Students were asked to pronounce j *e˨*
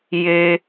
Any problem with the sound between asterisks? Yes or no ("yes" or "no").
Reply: yes